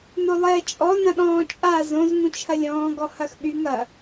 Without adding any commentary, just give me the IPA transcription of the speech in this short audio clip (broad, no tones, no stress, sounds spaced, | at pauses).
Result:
n o lˠ ɛː t͡ʃʼ ɔ n ɐ̃ ɗ ɔ̃ː t͡ʃʼ a z õ z ŋ ũ t͡ʃʰ ɐ lʲ ɔ̃ː ɡ ɔ h ɐ x ɓ y ŋ ɐ